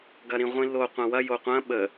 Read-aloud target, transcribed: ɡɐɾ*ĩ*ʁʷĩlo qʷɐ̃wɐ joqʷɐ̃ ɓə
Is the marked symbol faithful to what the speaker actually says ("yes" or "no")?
yes